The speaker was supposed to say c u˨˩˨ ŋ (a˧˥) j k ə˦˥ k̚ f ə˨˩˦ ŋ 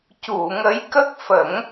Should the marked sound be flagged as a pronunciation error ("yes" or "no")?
yes